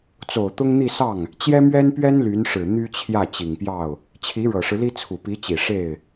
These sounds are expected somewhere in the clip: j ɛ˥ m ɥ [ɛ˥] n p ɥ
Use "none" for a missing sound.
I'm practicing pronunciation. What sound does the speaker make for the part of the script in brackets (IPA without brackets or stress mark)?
ɛ˥